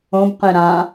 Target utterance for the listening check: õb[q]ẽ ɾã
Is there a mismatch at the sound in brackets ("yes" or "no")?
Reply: no